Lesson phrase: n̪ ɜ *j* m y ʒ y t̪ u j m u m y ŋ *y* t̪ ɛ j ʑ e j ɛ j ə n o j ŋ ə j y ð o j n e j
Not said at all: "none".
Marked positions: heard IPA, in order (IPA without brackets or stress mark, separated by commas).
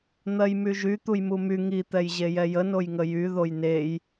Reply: j, i